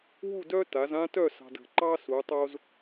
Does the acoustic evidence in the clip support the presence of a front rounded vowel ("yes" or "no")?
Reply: yes